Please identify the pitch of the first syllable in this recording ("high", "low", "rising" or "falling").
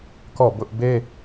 falling